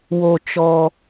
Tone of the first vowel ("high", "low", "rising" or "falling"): low